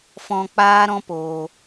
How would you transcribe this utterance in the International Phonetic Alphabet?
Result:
f ɔ̃˧ k͡p aː˦ ɾ ɔ̃˦ p oː˧

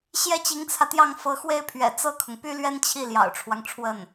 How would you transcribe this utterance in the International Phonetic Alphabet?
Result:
ɕ j ɛ˥˩ t͡ɕ i˧˥ ŋ t͡sʰ ä˧ t̪ j ɑ˥˩ ŋ f ɤ˧˥ x w e˥ ɪ̯ pʰ ɥ ɛ̰˨˩ t͡s ɤ˥˩ kʰ ʊ˩ ŋ p y˥ l ɥ ɛ˥ n t͡ɕʰ i˥˩ l j ɑ̰˨˩ ʊ̯ ʈ͡ʂʰ w ɑ˦ ŋ ʈ͡ʂʰ w ə˥˩ n

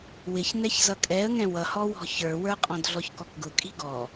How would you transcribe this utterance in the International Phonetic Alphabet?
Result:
w ɪ ç n ɛ ç z ʌ kʼ ɛ ə̯ ŋ ɛ̃ w ʌ h ɔ w ɔ̤ ç ə˞ w ə˞ qʼ ɔ̃ d ɮ ɔ ç k ɔ k ɡ ʊ kʼ i̤ ɡ ɔ

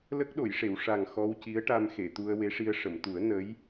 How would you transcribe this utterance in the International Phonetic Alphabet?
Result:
l ə˦˥ k̚ ɗ o˨˩˨ j ʂ e˨˩˨ w ʂ a˨˩ ŋ x ɔ˧ w c i˧˥ ə̯ ʈ a˧ m x e˨˩˨ t̪ u˧ ə̯ w e˧˥ ʂ i˧ ə̯ ʂ ə˨˩˨ m t̪ u˨˩˦ ə̯ n ə˧˥ j

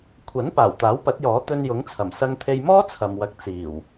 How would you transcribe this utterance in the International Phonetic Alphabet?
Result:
kʷʰ ɐ˨˥ n p aː˨˩ w t̪ aː˨˥ w p ɐ˨˥ t̚ j ɔː˨˥ t̪ ɵ˧ n j ʊ˨˥ ŋ t͡sʰ ɐ˨˩ m s ɐ˧ ŋ t̪ʰ e˧ j m ɔː˥ t͡sʰ ɐ˨ m w ɐ˧ k̚ t͡s iː˨˩ w

